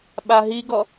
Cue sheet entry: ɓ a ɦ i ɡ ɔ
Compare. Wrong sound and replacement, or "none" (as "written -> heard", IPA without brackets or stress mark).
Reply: none